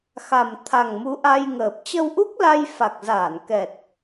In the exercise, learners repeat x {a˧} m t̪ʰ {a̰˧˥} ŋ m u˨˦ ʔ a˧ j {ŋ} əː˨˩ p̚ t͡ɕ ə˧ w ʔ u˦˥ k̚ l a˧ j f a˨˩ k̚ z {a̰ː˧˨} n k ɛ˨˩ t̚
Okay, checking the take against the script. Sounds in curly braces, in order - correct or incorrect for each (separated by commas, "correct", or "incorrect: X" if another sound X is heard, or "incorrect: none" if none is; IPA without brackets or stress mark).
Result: incorrect: a˨˩, incorrect: a˨˩, correct, incorrect: aː˧˩